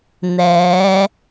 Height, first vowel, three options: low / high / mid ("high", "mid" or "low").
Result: mid